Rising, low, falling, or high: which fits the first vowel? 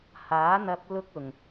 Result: rising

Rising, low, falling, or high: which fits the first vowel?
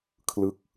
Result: falling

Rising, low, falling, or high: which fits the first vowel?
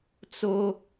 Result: high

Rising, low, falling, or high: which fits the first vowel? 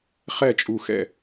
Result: falling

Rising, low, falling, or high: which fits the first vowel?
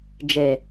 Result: low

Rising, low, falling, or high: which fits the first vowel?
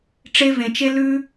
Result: high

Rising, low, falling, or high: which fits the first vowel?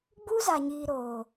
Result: high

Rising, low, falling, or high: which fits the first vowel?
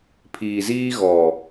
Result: low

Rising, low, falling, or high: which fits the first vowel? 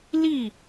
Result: falling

